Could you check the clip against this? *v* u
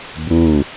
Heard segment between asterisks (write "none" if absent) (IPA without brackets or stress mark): b